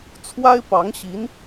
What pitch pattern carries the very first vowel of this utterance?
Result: high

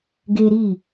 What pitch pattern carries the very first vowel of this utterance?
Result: high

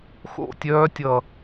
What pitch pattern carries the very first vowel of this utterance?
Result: falling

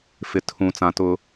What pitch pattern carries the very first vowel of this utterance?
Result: low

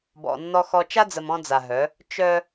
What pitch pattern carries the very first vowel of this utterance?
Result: low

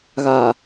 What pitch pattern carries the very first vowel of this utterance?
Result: low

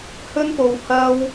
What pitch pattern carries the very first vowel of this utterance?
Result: high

